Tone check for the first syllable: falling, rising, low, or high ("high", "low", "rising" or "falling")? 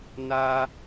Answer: high